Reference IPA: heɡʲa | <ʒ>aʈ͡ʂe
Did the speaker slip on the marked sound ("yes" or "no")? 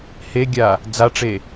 yes